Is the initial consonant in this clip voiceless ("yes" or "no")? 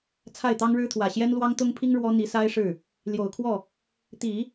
yes